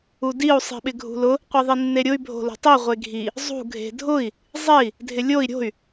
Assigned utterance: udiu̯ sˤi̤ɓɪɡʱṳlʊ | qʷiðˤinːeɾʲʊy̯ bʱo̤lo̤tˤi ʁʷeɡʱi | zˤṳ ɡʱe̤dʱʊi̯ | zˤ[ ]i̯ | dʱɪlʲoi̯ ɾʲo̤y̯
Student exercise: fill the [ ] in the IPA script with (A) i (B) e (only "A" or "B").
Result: B